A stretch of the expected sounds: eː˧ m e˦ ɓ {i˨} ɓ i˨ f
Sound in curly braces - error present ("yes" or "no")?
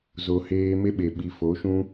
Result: yes